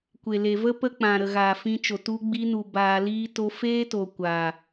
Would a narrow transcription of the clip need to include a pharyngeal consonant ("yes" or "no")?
no